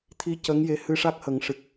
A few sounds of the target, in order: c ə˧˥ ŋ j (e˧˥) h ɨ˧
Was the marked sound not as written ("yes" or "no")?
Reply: no